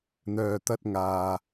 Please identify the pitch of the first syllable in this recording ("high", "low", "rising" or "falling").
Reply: low